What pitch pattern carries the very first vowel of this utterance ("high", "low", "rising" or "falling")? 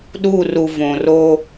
falling